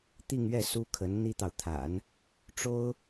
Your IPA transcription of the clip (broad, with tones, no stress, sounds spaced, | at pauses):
t̪ i˥˧ ŋ ɥ ɛ˥˩ s u˥ kʰ ə˧˥ n n̪ i˥ t̪ ɑ˨ ʊ̯ t̪ʰ a̰˨˩˦ n | ʈ͡ʂ o˥ ʊ̯